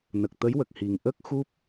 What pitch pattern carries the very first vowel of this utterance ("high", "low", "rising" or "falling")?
low